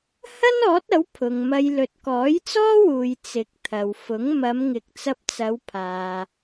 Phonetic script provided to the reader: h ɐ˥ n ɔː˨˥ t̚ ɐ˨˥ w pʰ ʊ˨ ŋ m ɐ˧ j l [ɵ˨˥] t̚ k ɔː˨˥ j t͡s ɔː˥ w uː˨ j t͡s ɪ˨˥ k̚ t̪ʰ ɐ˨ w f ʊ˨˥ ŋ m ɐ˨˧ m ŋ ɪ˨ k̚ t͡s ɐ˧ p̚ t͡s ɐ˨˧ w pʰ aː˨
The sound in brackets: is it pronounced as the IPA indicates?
no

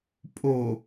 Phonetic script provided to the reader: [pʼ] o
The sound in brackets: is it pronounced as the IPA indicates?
yes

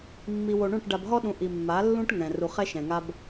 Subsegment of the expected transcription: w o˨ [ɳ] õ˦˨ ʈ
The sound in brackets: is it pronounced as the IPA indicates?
yes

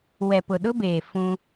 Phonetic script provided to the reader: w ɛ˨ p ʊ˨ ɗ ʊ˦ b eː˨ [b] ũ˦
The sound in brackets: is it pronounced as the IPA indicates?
no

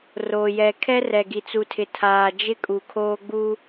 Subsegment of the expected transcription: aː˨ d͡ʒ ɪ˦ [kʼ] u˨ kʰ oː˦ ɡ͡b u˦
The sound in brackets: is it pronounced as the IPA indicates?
yes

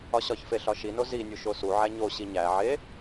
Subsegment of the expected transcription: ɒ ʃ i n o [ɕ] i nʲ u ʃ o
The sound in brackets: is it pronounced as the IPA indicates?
no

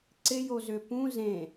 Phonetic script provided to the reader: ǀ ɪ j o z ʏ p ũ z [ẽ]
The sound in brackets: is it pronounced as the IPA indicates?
yes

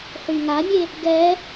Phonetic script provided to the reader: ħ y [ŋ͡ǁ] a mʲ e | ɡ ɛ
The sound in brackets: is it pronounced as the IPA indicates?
no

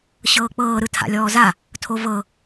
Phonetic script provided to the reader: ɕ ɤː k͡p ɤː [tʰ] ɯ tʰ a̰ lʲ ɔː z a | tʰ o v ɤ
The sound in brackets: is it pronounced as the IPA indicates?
no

